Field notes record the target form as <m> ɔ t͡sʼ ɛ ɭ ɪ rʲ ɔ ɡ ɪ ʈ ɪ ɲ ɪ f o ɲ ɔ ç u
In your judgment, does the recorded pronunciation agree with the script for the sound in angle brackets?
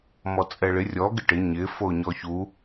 yes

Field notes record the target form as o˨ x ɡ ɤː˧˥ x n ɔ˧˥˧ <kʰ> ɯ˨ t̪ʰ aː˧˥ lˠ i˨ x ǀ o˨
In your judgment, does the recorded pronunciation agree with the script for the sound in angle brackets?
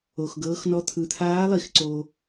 no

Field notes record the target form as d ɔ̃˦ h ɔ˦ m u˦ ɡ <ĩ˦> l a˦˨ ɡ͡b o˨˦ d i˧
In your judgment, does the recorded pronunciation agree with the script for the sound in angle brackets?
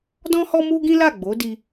yes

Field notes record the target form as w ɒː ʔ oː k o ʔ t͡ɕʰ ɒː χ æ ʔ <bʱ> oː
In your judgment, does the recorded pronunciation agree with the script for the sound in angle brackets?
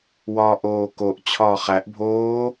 yes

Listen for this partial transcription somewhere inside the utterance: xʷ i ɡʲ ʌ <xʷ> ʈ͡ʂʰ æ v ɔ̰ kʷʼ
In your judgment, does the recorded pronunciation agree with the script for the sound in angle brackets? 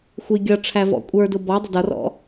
no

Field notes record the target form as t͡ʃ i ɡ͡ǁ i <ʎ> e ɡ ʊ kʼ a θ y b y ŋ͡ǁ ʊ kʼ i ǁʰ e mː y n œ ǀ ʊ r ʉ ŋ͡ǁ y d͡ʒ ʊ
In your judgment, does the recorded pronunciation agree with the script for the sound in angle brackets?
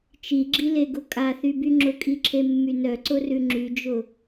no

